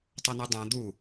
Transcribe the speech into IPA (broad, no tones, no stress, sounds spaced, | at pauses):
tˤ ɐ n ɨ dˤ ɛ̃ d̪ u